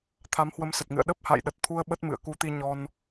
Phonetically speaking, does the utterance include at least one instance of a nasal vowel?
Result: no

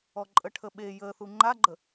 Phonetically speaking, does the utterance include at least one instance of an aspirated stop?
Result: yes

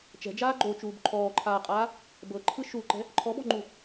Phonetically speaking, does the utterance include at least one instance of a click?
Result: yes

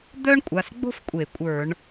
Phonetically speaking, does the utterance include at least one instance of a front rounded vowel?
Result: yes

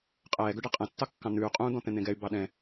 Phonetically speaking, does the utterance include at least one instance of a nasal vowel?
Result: yes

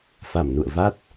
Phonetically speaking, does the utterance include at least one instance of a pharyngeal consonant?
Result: no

